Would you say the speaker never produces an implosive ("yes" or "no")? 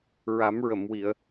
yes